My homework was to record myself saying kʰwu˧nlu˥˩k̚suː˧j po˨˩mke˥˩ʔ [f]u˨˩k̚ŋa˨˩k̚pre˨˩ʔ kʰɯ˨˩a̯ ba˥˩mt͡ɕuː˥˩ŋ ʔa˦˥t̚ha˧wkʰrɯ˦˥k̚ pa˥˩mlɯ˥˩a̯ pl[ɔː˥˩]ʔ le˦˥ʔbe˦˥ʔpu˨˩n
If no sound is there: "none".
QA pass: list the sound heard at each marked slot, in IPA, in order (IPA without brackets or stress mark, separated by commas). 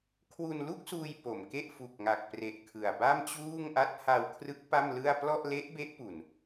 f, ɔ˥˩